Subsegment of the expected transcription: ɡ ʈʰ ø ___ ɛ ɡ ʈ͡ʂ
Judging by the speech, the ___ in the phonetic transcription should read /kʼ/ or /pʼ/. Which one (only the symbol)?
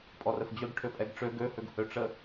pʼ